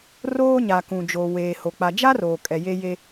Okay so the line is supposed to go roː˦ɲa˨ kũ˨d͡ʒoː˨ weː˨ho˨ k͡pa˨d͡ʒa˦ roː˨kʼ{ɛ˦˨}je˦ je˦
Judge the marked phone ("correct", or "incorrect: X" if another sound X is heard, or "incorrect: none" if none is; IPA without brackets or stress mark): incorrect: ɛ˨